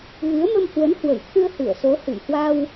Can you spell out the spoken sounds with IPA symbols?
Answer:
ɣ ɨ˨˦ ə̯ m ə˧ m h w ə˨˦ n h w ə˧˩ j t̪ʰ ɨ˧ ə̯ h ɨ˧˩ ə̯ s o˨˦ h ɨ˧˩ j h w a˧ w

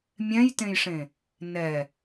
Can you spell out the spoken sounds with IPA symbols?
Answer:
mʲ ɛ̃ j t ẽ j ʂ ẽ | n ɛ

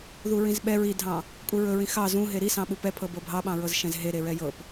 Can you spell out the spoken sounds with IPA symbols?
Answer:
ð u ɹ ĩ z ɓ ɛ ɹ i dʱ ɑ̃ | kʼ u ɹ ɵ ɹ ĩ x ɑ z ũ ɦ e ɾ i s ɑ̃ ɓ u p ɛ pʰ ɤ b ɤ bʱ ɑ ɓ ɑ̃ ɹ ɤ z ʃ ɛ̃ z ɦ e ɾ e ɹ ɛ j ɤ p

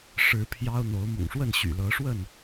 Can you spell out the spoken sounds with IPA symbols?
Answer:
ʂ ɻ̩˨˦ pʰ j ɑ˦ ʊ̯ n̪ o˨˦ ʊ̯ m ʊ̰˨˩ ŋ ʂ w ə˥˨ n ɕ y̰˨˩ l ɤ˨˦ ʂ w ə˥˨ n

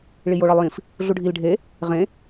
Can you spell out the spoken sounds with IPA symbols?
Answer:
ɭ i j o ɭ ɒ lˠ j ĩ f | ɮ u ɖʱ i l ɖʱ e | ʁ ẽ

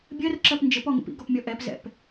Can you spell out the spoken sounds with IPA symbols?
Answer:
bʲ ɜ r ǁ ɜ p n d͡ʒ ɘ p ɔ ŋ ə̰ p ḭ ɡ ɔ p mʲ ɔ ʔ ɛ p z ɛ̰ p

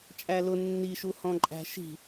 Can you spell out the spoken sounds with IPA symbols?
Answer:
t͡ʃʼ æ l ʊ nː i ʃ u h ɔ̃ ǃʼ æ̤ ʃ i̤

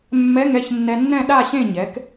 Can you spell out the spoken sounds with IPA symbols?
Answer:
mː ɛ˧˥˧ ŋ ɛ˥˨ ç nː ɛ˧ nː ɛ̃˥˨ ɗ a˥˨ ɕ ẽ˥˨ ɲ ɛ˩˥ k

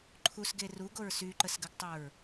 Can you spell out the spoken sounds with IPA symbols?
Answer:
ǃʰ u s ɡ e r u ɡ o ɹ s y ǃ ə s ɡ ə ɡ tˤ o ɹ

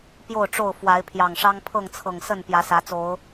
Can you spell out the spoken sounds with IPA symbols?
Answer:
p j o˥˨ ʊ̯ ʈ͡ʂ o˥˨ ʊ̯ f w a˨˦ ɪ̯ pʰ j ɑ˨˩ ŋ ʂ ɑ˦ ŋ pʰ ɤ˥˨ ŋ t͡sʰ ɤ˨˩ ŋ s ə˥˨ n p j ä˨˦ s ä˨˦ t͡s o˨˦ ʊ̯

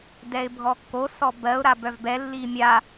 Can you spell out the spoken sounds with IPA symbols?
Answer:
d ɛ ɪ̯ bʱ ɔ kː o s ɔ b ɜ ʊ̯ ɾ a b œ v b ɛ lː i mʲ a

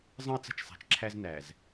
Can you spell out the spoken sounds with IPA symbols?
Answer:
zˤ ə̃˦ i̯ t͡s ə̤˦˨ t͡ʃ sˤ æ̤˨ t͡ʃ ǁʰ æ˦ z n æ˨ z

